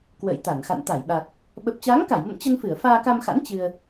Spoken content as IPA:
kwə̰ː˧˨jt̪a˧˩nxa̰˧˨n t̪a˧˩jɓa˨˩t̚ | ɓə˨˩p̚t͡ɕaː˨˦ŋka˧˩jmə̰˧˨m t͡ɕə˧nfɨ˧˩ə̯ faː˧ka˧mxa̰˧˥n t͡ɕɨ˧ə̯

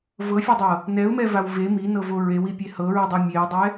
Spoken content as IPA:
vɤfʲɛdˤɤ | nɛʊ̯mɛvaw ve minɤvo ɹewipʲe hɤɹidˤɛ mʲeʊ̯dˤɛ

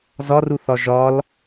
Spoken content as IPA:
zɒruθɒ ʒɒl

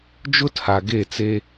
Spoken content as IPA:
d͡ʒʊ˦tʰa˨ɡe˦˨t͡se˦

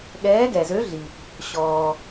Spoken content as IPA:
ɠɛː˨˦ɡɛ˩zø˨˦ɮi˩ | ɕɔː˩

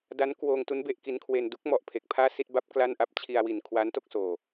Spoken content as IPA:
da˦˥nkwoː˧ŋtu˦˥n be˥˩ʔki˦˥nkʰwe˧n du˦˥k̚mɔ˨˩ʔ pʰe˨˩k̚pʰaː˥˩si˥˩t̚ ba˦˥p̚ kla˥˩nʔa˥˩p̚ t͡ɕʰi˧a̯wi˨˩n kʰwa˦˥nto˥˩k̚soː˨˩

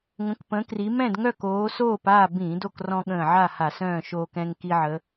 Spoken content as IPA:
ŋə̃˨˦kpə̃˨˦kri˨˦ mɛ̃˥˨dŋœ˥˨k oː˨˦soː˥˨p a˥˨bĩ˧˩˧ do˥˨krɔ̃˦ɠə̃ː˧˩ʕa˥˨ ha˧˩˧sœ̃ː˥˨ ʃoː˦kɛ̃˦ŋ ki˦ʕə˨˦

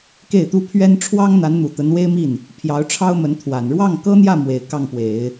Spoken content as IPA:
ke˥˩ɪ̯t̪u˥ pʰɥɛ˥n ʈ͡ʂʰwɑ˥ŋn̪a˧˥nn̪u˨˩ t̪ə˧˥nwe˥ɪ̯mi˥˩n | pʰjɑ˧˥ʊ̯ʈ͡ʂʰɑ˥ʊ̯ mə˧˥nt̪ʰwa˨˩n ɻwɑ˥˩ŋkɤ˥n̪jä˥˩ mwe˨˩ɪ̯kɑ˥˩ŋpwe˨˩˦ɪ̯

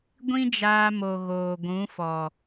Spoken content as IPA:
ɡʷĩ˦d͡ʒaː˧mo˨ ɣoː˨ɡʷũ˨˦fɔ˨

